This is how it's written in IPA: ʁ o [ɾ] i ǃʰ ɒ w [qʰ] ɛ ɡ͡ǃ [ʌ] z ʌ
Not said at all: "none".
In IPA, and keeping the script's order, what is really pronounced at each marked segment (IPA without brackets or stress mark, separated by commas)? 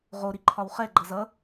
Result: ɾ, χ, ʌ